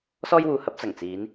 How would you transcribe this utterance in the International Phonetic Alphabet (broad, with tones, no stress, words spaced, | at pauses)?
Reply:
sɔː˥jwuː˧hɐ˨˥p̚ t͡sɐ˨˩ŋt͡siː˨˧n